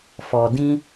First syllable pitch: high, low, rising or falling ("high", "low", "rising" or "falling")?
low